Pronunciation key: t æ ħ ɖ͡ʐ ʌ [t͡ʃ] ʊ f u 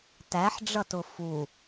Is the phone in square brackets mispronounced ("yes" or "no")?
yes